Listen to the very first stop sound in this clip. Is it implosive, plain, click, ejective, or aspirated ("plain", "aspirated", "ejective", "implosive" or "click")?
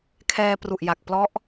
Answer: aspirated